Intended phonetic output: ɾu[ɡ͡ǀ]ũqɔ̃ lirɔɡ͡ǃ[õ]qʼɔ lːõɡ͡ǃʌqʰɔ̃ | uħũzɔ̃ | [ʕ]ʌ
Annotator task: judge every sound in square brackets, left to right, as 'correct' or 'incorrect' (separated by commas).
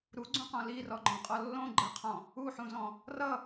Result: correct, incorrect, incorrect